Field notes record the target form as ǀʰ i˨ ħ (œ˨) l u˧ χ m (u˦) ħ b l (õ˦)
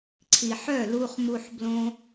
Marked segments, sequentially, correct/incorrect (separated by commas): incorrect, incorrect, correct